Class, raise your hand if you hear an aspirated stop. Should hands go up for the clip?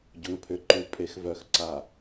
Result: yes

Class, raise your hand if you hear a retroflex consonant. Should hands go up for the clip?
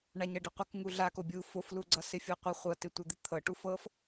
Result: yes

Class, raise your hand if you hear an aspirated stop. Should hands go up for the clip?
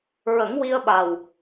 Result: no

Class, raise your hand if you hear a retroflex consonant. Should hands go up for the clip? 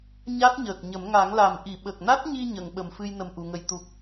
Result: no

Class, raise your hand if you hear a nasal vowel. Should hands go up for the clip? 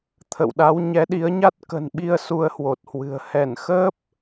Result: no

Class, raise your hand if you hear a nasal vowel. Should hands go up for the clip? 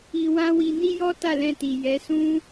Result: yes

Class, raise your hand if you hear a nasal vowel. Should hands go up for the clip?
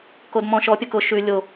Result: yes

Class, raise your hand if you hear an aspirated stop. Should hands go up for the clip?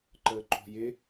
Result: no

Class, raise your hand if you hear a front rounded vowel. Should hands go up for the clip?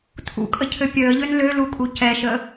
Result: yes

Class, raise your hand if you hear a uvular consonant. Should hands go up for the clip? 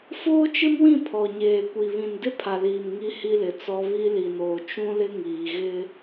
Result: no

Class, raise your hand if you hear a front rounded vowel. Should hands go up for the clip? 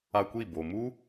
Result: no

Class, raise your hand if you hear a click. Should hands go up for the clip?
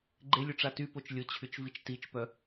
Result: yes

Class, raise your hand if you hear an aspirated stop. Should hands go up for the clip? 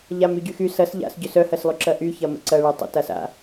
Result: no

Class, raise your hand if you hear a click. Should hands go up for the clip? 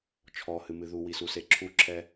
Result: yes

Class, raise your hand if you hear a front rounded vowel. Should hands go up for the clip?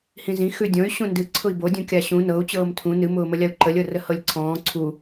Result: yes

